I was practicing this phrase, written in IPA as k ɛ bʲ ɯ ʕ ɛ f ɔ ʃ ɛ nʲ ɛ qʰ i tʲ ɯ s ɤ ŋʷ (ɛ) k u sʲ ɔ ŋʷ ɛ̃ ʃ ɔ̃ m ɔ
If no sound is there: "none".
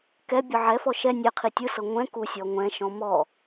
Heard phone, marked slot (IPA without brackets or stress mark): ɛ̃